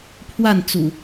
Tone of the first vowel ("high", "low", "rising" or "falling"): falling